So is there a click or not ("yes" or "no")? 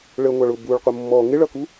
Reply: no